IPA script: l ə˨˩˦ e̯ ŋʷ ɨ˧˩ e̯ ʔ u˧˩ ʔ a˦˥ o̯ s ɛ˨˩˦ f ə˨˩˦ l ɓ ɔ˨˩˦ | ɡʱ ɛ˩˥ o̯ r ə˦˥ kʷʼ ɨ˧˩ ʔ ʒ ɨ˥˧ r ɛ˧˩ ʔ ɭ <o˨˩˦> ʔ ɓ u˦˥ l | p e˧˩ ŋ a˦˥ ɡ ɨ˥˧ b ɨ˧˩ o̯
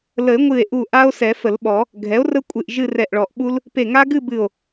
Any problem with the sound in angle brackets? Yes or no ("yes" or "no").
yes